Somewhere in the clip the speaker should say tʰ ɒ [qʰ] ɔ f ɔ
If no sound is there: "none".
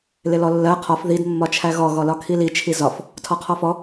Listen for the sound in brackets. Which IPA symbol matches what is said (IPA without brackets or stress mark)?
qʰ